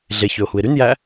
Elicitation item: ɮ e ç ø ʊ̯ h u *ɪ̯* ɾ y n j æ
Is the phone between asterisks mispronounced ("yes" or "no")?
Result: no